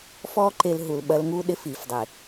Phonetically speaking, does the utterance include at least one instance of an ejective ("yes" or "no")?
no